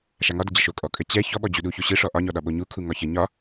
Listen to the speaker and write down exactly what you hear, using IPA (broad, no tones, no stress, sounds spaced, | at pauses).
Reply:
ʃ a ŋ ɒ d ə d͡ʑ ə ʃ o kʼ ɔ kʼ ə t͡ɕ ɛ ç ɔ ɓ ɔ d͡ʑ u ɗ u ç o ɕ ɯ ʂ ɔ ʔ ɒ ɲ ɔ ɗ ɒ ɓ o ɲ u kʰ u ŋ ɒ ç ə ɲ ɒ